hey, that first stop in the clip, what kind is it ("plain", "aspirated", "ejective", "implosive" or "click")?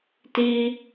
plain